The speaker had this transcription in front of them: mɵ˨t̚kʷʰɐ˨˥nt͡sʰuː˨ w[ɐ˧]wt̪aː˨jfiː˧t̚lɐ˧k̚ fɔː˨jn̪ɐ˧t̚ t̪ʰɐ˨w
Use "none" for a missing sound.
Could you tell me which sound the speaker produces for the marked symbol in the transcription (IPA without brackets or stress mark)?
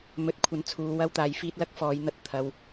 ɐ˧